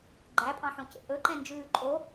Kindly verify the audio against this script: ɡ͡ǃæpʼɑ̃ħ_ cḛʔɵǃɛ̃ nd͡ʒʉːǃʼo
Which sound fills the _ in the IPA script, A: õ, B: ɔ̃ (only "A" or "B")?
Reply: A